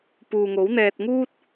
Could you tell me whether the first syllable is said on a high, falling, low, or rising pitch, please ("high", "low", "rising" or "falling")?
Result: low